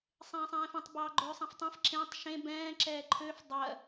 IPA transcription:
sˤ ẽː sˤ ɛ̃ː f ɛ̃ tˤ b ɑː ɡ͡ǃ øː sˤ ɛ̃ f tˤ ɛ̃ f ǁ ẽ tˤ ʃ ẽ b ɛ̃ː ǁ ɛː ǃʰ øː f dˤ ɜ

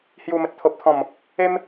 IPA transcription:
h j u˨˩ m ə˨ t̚ t̪ʰ o˨ p̚ t̪ʰ ɔ̃˨˩ m | e˦ m

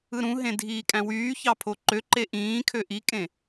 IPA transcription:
ɯ ɾ ũ ɦ ẽ dʱ iː kʼ æ̃ w yː ç ɑ pʰ o ǃ ø ǃ e ʔ ĩː kʰ ø ʔ i kʼ ẽ

